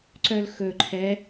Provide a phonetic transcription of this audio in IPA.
ǀ œ l x ɵ ǃʰ ɛ

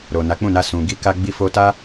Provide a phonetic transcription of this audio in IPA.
ɾ o˨ n a˨˦ k͡p ũ˦˨ n a˧ s ũ˨ ɡ i˧ k a˧ ɡ͡b i˧ f o˧ t a˦

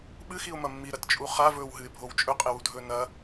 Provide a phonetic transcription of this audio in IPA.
ɓ ɨ x i ʊ̯ m ɐ mː i ɾ ɐ t t͡ʃʼ u χ a v ɵː w ɦ ɨ ɪ̯ bʱ o w t͡ʃʼ ɵ qʼ e w u dʱ ɵː n ɐ

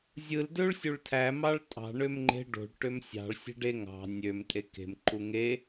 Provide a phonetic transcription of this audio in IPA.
zʲ ɯ l d ø ɭ sʲ u ɭ tʰ æ m ɑ ɭ tʼ ɑ̤ ɳ ø m ŋ͡ǃ e̤ ɖ o̤ ɭ ʈ ø m sʲ ɑ̤ ɭ sʲ e̤ ɖ e ŋ ɑ̤ nʲ ø m tʼ e k e̤ m ǃ u ŋ e

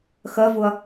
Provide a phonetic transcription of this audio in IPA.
x ɜ v ʊ ɐ̯

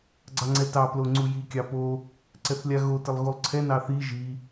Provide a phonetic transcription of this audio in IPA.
ɡ͡ǀ ɑ ŋ͡ǀ ɛ t ɑ p l o ŋ͡ǀ u j i kʲ ɑ p o | ǀ ɛ θ lʲ a ɣ o t ɪ lˠ ɣ u lˠ ǀʰ ɛ n ɑ θ i ʒ i

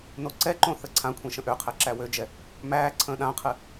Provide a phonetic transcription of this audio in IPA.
n o ǀ ɛ ǃ õ θ ə ǀʰ ã kʷʰ ẽ ʃ ə̃ ʔ ø qʰ ɛ ǁ æ w ø d͡ʒ ɛ | m æː ǀʰ ə̃ː ɗ ã qʰ ɨ

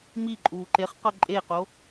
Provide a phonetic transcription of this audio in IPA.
m i ǃʼ uː ǃ e χ q ɤ ǃʼ e q o

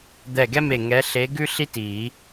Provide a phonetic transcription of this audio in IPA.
d̪ ɛ˧˩ ɡ ɛ˥ m e˧˩ ŋ ɛ˨˦ ɬ e˨˦ ɡ ʉ˥ ɬ i˥ t i˨˩˦

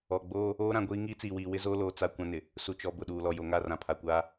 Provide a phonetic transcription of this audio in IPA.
ɔ˨ ɡ͡b oː˦ | oː˦ ɾ ã˨ ɡʷ iː˦ ŋ iː˦ t͡s iː˨ w iː˨ w ɪ˦ z oː˦ l oː˨ t͡s a˦ kʷ ã˦ n ɪ˨ | s u˨ t͡ʃ ɔ˨ b ʊ˨ ɗ uː˨ l ɔ˨ j o˨ ŋ a˦˨ r ã˨ pʰ a˨ kʷ aː˦

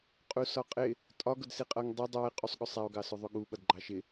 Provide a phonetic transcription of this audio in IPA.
qʼ u s ɒ qʼ ɪ | tʼ ɒ ɡ ʊ d s i qʼ ʌ ŋ dˤ i dˤ æ e̯ qʼ u sˤ ɠ ʊ sˤ æ o̯ ɡ ɑ s ʊ ðˤ ʊ ɠ u ɓ ʌ d ɡ͡ǃ ɑ ʃ ɪ

